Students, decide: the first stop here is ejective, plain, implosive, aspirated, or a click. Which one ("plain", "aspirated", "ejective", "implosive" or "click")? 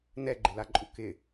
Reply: click